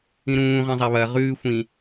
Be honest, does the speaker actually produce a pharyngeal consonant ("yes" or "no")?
no